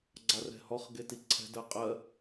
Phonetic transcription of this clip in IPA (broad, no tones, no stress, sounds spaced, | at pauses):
ɡ͡ǀ a r ɛ̤ h ɔ χ ɡ e t i ǀʰ ɛ̤ d ɜ qʼ ɜ